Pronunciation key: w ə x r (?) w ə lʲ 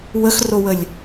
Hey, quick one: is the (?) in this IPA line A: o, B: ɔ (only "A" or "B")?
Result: A